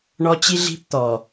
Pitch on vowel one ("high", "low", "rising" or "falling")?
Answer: high